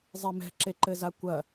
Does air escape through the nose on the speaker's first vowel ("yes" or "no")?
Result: no